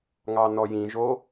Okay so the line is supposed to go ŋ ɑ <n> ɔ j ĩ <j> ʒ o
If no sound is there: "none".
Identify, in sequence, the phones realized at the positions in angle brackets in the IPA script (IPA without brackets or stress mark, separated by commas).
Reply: n, none